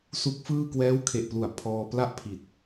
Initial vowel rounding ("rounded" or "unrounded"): rounded